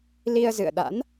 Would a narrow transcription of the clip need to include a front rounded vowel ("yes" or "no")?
no